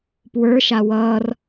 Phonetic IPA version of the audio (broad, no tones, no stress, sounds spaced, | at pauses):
p w ə˞ ʃ a w ʌː r